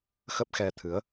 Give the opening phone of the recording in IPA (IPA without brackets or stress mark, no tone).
x